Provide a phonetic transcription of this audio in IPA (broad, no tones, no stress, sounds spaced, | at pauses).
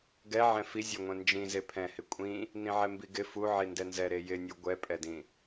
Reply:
ɡ ɛ ʕ ɛ̃ f i zʲ ɛ ŋʷ ɛ̃ n d͡ʒ ĩ z e pʰ ɛ̃ h ɪ kʷʼ ĩ | n ĩ ʕ ɛ m b i ɡ ɪ f u ʕ i n d ɛ n z ɛ ɾ e j ɪ nʲ u ɡʷ ɛ pʼ ɛ d ĩ